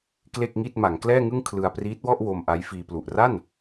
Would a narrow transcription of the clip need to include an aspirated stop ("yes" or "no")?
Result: yes